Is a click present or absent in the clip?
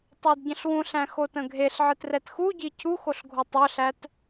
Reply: absent